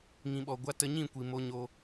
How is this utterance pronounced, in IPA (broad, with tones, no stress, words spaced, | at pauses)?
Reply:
ŋĩ˨ɓɔ˨ɡʷa˧ tə˧ɲĩ˦˨kʷi˨mo˧ ɲo˧